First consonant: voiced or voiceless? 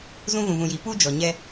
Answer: voiced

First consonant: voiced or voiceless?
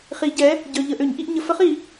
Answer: voiceless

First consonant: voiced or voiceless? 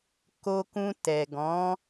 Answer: voiceless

